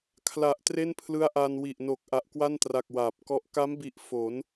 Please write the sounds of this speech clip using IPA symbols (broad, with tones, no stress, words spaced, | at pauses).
kʰla˨˩ʔ tre˥˩npʰlɯ˦˥a̯ʔa˧n wi˨˩ʔno˨˩k̚ ʔa˨˩ʔkwa˥˩ntra˨˩k̚ waː˨˩p̚kɔ˦˥ʔ ka˦˥mbi˨˩ʔ fo˩˦n